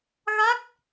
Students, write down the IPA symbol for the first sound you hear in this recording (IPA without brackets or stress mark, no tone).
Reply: ɣ